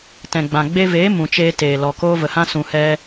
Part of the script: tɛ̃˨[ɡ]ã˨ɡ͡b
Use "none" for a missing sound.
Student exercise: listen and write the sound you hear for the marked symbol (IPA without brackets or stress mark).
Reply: ɡ͡b